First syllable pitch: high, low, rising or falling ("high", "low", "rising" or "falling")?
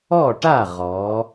falling